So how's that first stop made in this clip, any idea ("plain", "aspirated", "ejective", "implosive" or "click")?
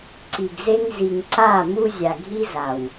click